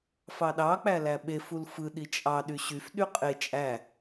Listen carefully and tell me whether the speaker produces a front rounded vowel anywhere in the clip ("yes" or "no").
yes